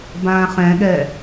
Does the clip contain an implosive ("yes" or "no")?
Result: yes